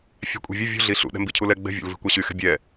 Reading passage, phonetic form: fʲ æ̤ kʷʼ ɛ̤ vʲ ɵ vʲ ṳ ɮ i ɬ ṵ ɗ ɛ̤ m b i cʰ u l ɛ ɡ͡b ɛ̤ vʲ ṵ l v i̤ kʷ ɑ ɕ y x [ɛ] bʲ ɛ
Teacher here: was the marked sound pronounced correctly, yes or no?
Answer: no